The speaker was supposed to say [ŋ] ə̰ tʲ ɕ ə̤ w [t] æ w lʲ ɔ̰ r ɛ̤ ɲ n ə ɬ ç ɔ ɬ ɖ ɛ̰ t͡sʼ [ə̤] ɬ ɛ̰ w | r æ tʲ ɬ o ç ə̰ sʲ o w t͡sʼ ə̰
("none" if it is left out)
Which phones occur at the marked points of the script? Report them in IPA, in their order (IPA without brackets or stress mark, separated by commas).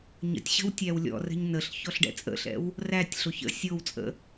ɲ, tʲ, ə̰